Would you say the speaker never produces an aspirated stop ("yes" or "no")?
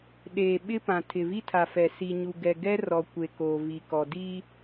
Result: no